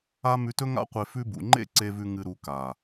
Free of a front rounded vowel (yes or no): yes